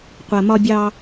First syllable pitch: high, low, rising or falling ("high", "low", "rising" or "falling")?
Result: low